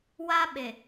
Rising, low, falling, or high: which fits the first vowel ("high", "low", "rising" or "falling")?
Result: high